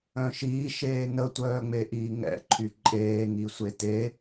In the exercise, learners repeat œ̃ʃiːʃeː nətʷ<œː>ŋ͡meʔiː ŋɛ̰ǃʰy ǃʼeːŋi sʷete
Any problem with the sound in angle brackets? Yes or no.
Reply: no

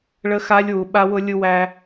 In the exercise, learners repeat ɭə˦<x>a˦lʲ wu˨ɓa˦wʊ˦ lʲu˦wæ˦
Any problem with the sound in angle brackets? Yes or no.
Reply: no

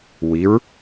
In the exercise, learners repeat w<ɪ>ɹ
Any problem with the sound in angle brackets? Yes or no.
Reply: yes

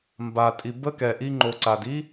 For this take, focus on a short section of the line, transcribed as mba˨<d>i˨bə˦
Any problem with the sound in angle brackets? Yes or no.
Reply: yes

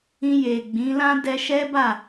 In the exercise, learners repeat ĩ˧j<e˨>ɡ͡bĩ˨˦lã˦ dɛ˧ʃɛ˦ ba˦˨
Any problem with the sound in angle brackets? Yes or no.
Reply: no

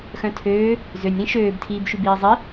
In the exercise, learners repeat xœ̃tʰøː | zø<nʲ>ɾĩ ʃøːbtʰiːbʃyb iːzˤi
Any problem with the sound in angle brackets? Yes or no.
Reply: no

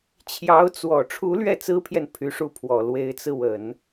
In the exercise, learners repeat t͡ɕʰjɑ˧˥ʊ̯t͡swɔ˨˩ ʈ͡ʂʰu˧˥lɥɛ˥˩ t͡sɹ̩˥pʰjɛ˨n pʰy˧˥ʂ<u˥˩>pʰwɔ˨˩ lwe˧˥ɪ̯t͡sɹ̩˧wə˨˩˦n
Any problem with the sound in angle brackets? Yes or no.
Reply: no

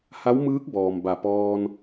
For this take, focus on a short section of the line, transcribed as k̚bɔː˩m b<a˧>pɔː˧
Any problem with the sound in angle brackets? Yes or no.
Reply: yes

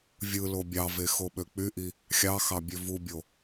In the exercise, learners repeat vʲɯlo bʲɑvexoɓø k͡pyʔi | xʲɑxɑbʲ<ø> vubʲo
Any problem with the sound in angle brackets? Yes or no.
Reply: no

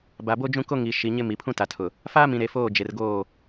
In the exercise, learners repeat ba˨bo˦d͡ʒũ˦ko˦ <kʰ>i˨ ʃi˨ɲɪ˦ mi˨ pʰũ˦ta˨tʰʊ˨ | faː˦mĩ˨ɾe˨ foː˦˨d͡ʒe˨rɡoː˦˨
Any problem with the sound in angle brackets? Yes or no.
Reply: yes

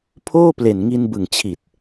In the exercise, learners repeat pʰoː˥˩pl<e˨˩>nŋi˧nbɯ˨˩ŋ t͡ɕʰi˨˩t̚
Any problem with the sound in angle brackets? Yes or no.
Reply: no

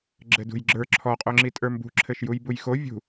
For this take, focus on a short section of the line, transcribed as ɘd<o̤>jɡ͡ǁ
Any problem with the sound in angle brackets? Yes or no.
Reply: yes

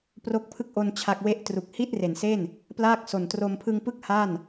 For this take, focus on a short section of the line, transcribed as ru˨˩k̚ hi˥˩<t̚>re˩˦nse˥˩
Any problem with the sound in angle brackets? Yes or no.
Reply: no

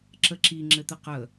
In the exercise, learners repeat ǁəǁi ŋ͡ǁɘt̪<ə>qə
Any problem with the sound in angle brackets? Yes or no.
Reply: no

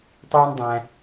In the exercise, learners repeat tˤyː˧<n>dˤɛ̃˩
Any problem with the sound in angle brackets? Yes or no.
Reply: no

